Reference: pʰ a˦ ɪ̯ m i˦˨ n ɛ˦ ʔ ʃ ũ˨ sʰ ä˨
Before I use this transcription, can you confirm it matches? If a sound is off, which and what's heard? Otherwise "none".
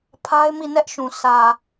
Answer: none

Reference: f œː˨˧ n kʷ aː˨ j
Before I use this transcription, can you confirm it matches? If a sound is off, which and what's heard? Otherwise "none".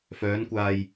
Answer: none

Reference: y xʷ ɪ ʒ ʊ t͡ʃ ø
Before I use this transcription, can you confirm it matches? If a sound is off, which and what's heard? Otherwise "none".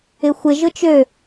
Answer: y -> ɪ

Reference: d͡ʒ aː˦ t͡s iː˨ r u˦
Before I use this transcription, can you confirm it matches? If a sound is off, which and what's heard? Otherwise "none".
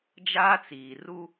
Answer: none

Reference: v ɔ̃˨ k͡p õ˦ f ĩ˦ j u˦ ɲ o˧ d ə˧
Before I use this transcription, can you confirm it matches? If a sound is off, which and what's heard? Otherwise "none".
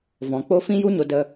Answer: õ˦ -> o˦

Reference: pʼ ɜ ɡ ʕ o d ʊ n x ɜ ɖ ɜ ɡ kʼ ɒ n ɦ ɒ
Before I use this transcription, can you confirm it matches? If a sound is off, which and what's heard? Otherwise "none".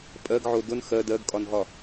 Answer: ɖ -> d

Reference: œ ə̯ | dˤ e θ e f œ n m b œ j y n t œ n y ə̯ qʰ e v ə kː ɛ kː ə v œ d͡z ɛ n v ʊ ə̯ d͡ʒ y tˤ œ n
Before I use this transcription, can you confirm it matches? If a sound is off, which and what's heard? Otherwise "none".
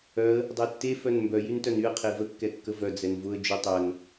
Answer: θ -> tː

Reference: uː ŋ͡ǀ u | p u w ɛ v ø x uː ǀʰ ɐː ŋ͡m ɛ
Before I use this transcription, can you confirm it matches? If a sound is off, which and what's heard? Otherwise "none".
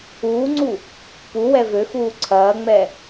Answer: none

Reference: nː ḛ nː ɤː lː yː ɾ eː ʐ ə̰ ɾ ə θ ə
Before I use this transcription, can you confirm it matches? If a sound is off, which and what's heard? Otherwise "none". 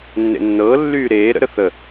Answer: ʐ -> ɾ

